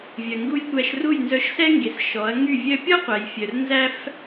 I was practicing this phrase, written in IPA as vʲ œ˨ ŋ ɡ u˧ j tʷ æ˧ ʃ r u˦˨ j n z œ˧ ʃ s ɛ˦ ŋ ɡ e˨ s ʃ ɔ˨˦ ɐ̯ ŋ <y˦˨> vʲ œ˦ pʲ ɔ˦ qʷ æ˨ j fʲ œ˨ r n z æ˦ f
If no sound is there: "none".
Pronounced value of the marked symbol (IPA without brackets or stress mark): y˦˨